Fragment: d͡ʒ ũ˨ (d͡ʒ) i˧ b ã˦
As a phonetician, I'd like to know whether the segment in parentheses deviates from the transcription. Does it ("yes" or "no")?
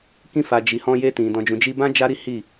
no